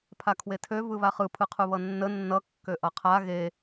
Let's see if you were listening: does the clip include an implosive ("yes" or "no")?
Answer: no